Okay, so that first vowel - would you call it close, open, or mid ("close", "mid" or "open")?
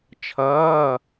mid